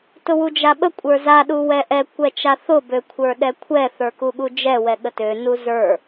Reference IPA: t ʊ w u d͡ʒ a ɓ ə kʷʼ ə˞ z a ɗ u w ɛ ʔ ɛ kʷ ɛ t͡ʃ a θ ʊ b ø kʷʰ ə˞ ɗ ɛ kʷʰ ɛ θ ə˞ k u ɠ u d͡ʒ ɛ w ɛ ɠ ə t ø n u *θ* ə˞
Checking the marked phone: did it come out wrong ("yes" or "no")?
yes